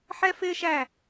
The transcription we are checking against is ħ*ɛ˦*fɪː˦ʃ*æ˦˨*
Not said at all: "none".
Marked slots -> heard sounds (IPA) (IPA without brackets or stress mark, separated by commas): ɛ˦, æ˦˨